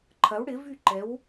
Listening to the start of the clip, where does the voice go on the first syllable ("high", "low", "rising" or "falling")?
rising